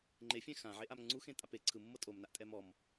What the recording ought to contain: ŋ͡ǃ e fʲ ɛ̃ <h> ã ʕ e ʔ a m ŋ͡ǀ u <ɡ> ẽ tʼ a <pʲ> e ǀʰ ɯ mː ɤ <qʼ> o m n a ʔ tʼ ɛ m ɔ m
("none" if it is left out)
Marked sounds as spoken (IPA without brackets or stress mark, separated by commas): x, x, p, tʼ